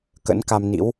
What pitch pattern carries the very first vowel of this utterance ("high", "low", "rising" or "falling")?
rising